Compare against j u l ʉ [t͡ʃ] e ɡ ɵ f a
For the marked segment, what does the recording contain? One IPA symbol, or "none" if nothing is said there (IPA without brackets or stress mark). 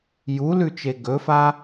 t͡ʃ